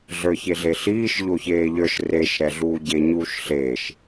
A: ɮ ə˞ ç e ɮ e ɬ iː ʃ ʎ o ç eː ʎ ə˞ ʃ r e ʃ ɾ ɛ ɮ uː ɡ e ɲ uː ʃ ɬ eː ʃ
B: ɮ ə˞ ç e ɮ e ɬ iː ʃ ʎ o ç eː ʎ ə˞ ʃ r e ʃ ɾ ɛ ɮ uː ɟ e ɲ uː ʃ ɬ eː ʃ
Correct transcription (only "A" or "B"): B